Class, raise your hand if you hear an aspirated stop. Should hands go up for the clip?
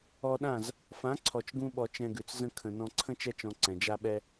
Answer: yes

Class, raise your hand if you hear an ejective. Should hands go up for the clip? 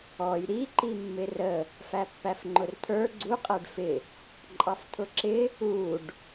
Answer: yes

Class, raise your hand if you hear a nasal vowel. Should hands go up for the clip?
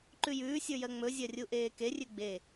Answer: no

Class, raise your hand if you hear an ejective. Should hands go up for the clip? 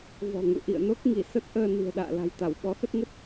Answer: no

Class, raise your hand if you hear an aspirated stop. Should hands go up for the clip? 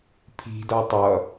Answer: yes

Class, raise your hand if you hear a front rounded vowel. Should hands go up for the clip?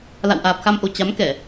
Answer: no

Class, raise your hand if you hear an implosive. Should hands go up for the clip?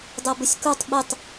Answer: yes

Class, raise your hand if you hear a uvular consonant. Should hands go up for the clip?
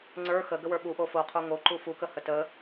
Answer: yes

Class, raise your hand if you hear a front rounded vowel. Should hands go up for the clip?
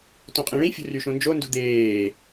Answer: yes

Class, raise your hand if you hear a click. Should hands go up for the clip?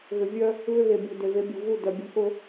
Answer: no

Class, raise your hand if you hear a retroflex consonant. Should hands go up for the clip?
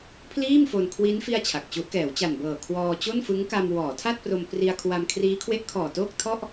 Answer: no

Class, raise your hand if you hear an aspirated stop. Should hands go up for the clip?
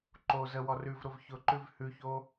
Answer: no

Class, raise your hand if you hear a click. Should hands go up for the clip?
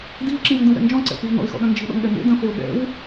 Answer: yes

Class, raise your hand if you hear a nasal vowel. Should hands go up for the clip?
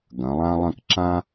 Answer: yes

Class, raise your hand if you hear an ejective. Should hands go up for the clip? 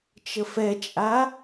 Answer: yes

